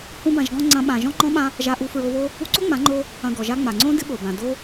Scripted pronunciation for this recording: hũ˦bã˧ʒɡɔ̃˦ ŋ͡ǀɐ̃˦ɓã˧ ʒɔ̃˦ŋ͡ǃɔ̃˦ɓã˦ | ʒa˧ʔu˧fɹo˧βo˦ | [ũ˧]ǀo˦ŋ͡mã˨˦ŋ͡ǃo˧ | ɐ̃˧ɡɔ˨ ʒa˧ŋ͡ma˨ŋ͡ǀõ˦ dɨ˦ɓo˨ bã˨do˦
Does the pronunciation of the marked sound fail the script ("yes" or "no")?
yes